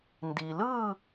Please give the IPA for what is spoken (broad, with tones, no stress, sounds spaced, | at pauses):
n d i˩ l ɯ˥˨